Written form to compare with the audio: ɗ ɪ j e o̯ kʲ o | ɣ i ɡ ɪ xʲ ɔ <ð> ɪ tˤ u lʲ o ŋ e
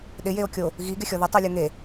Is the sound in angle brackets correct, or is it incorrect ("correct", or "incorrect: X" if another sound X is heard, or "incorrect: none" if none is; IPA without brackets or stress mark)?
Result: correct